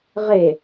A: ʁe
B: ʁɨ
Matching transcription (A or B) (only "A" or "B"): A